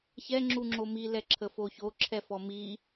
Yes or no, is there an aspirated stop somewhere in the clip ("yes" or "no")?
yes